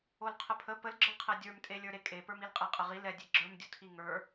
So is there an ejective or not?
yes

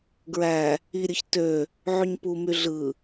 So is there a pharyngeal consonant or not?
yes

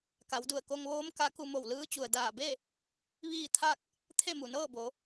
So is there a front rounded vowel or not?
no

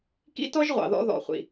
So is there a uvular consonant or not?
yes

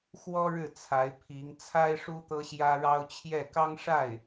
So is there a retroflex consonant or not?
yes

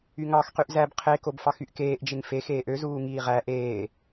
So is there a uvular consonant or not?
yes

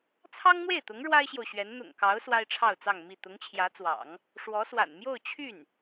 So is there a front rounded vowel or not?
yes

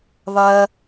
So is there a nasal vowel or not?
no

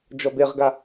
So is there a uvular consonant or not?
yes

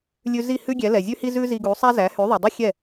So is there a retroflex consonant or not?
no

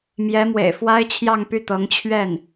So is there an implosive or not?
no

